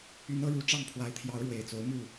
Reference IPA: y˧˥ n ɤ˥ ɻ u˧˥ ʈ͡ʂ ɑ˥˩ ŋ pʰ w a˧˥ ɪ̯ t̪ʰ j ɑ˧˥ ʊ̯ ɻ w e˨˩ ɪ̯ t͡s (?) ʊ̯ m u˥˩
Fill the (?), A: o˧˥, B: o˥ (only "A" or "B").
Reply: A